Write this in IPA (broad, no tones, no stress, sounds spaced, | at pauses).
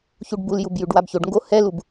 ç u ɖ b u l j u b j ʉ ɖ w a b ç o ɖ ŋ ɡ o h ɛ l u b